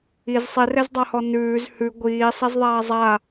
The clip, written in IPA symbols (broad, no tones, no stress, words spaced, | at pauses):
iz sˤirɛzdˤahɔ nʉːz hʉ ɡʷiːsˤɛzðˤaː zˤa